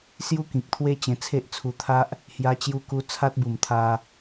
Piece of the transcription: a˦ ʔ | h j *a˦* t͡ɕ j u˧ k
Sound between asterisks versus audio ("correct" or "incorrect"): incorrect